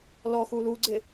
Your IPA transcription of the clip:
l ɔ x u l u ɡ͡ǀ ɪ

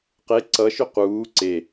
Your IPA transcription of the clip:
q e ǀ ʌ ʃ ʏ q uː ǀ e

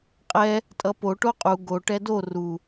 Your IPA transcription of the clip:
qʼ ɛ | tʼ ʌ p o ʈ o qʼ u ɡ o ʈ ɛ d o r u

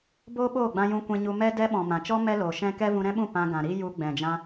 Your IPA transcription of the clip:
b oː˦ ɓ oː˦˨ ɡ͡b ã˧ j ũ˧ kʷ ɛ̃˧ ɲ u˧ m ɛ˧ d ɛ˧ ɓ ɔ̃˨ m ã˨ t͡ʃ ɔ˦ m ɛ˦ l oː˨ ʃ ɛ̃˦ k ɛ˦ v ũ˧ ɾ ɛ̃˦ ɓ ũ˦˨ p ã˧ ɡ ã˨ ɾ i˦ j u˧ ɡ͡b ɛ̃˨ d͡ʒ ã˧

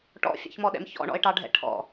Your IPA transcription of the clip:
ʈ ɔ̰ fʲ ɑ̰ ç m ɔ ɗ ɛ̰ m ç ɔ̰ ɳ ɔ̰ ɪ̯ ʈ ɑ ɖʱ ɛ̰ ʈʰ ɔ̰

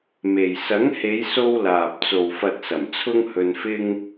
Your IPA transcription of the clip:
m e˨ j s ɐ˨˥ ŋ h e˨˧ j s o˧ w l aː˨ p̚ t͡s o˨ w f ɐ˧ t̚ s ɐ˨˩ m t͡sʰ ʊ˥ ŋ h ɵ˧ n f ɪ˥ ŋ

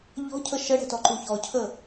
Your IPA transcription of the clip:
ʎ ɔ̤ cʰ ə ʃ ə ɽ ɛ̤ t ɔ ǃ u ç ɔ cʰ ə

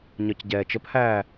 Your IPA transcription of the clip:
ɲ ɒ c ɟ ɛː t͡ʃ ə p h æː

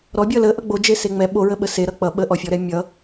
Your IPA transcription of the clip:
ɾ ɔ bʲ ʌ l ə ʔ ʌ ɡ͡b o d͡ʒ e s e ŋ͡m ɛ ɓ o ɹ ə ɓ ə s e ɾ ʌ k͡p ʌ ɓ ə ʔ ɔ fʲ ɔ ɾ ɛ mʲ ʌ

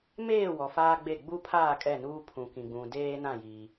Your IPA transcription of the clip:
m eː˦˨ w ɔ˨ f aː˦ ɡ͡b e˦˨ ɡ͡b u˦ pʰ aː˦˨ kʼ ɛ˦˨ n uː˦ pʰ ũ˨ k ĩ˨ ɡ͡b ũ˨ d eː˦ n ã˦˨ j i˨

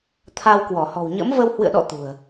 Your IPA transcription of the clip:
t̪ʰ a˧ w k w ɔ˧˩ h ɔ̤˨˩ w ɲ ə̰˧˥ m v ə˧ w h w ɨ̰˧˨ ə̯ ɗ ɔ̰˧˨ t̪ ṳ˨˩ ə̯

